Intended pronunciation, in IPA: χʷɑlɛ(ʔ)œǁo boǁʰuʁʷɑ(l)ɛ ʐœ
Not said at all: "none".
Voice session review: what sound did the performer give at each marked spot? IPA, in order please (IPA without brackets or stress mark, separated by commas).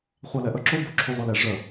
ʔ, l